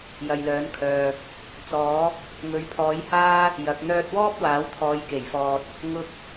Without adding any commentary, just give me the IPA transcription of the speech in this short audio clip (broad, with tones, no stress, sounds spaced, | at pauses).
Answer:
j ɐ˨ j l œː˨˥ n kʰ œː˨ | t͡s ɔː˨˥ | ŋ ɵ˨˥ ɥ pʰ ɔː˨˥ j h aː˥ | j ɐ˨˥ k̚ n̪ œː˧ t̚ w ɔː˥ p̚ w aː˨˥ w t̪ʰ ɔː˨˧ j k e˨˩ j f ɔː˨ t̚ | ŋ ʊ˧ k̚